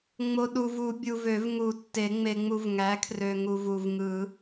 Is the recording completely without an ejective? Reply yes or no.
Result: yes